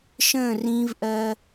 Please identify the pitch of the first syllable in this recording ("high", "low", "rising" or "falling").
falling